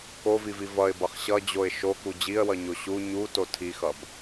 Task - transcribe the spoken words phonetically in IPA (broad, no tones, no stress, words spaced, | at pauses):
kovivi vʌɪ̯bʌχ ɕʌd͡ʑoɪ̯ ʃoku d͡ʑiə̯wʌɲo ɕu ɲuto tʰixʌb